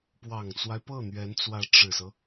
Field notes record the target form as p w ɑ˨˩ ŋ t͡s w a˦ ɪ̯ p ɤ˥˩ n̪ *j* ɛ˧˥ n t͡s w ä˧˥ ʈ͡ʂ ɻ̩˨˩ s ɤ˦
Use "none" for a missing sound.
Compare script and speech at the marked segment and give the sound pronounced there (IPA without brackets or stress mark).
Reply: ɥ